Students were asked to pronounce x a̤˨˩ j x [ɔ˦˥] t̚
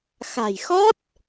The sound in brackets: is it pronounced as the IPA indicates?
yes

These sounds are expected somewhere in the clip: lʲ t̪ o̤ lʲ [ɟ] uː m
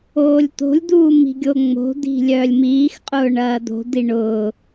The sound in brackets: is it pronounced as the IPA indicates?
no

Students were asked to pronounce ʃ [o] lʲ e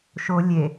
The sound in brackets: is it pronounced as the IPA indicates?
yes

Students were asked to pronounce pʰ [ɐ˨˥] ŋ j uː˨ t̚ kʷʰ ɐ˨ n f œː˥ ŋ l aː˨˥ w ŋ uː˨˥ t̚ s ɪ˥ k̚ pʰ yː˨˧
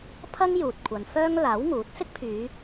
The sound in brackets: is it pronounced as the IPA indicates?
no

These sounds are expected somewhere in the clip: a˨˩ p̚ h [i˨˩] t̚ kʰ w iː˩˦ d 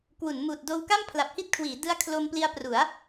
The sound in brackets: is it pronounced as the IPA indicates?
no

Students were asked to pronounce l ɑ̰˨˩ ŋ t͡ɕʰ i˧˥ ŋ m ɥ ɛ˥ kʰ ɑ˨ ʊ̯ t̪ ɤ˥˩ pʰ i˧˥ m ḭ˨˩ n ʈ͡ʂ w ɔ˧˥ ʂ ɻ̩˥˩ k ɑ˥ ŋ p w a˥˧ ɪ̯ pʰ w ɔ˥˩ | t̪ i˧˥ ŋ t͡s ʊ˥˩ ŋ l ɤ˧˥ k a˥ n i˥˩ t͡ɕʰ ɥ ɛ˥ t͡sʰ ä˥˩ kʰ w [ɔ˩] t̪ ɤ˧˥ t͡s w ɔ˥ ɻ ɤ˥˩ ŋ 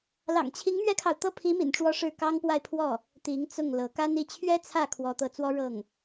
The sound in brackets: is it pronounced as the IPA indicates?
no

